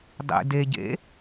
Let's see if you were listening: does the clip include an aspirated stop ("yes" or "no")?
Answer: no